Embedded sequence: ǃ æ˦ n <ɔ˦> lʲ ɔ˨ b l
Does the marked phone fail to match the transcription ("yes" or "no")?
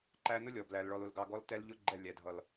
yes